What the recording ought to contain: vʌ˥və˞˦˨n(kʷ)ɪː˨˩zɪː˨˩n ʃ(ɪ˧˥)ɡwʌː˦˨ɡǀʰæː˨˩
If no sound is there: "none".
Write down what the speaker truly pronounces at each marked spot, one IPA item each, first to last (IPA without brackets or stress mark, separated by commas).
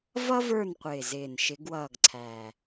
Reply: qʷ, ɪ˧˥